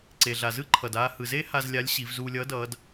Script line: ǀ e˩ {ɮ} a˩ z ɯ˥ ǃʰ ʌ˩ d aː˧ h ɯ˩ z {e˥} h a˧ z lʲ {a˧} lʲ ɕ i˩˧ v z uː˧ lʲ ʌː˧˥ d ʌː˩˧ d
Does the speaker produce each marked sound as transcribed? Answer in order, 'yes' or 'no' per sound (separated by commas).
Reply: yes, yes, no